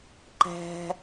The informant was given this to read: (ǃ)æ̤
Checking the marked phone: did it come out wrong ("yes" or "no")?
no